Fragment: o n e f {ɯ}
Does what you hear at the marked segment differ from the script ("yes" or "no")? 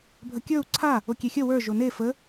yes